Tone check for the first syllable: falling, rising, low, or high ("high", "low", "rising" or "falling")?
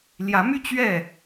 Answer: rising